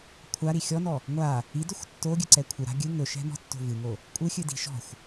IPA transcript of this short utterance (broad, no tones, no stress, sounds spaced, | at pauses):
kʷʰ a ɾ i xʲ ɔ n ɔ | ŋʷ a | i d ɵ xʷ tː o ɡʲ ɨ ǀ ɛ kʷʰ ɨ ɾ a̤ ɡʲ ɨ ŋ ɵ ʃ ɛ̤ m ɔ̤ tː o̤ v ɨ ŋ o | kʷʼ ɨ xʲ ɨ d i̤ ʃ ɔ̤ xʷ